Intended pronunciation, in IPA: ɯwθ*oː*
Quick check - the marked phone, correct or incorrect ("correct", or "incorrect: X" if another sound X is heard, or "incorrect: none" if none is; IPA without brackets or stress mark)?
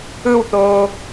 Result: correct